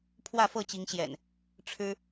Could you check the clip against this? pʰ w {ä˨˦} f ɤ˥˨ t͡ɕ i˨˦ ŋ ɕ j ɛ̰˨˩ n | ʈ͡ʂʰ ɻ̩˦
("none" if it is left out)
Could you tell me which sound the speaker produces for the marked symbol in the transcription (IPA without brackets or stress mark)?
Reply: ä˥˨